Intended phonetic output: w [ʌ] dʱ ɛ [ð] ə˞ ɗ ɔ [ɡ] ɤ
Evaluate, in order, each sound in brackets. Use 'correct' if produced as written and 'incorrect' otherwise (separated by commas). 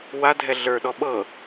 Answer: incorrect, incorrect, incorrect